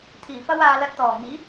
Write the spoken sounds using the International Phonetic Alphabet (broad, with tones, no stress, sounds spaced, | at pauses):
t̪ʰ iː˨˩ f ɐ˥ w aː˧ l ɐ˧ t̚ t̪ ɔː˨˩ ŋ iː˨˥